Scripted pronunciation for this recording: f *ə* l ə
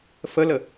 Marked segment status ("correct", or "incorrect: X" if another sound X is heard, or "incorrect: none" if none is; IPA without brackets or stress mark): correct